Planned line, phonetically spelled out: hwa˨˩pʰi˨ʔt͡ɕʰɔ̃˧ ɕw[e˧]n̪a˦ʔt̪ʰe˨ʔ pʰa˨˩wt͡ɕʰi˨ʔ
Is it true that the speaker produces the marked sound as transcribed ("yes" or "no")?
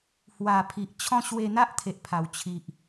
yes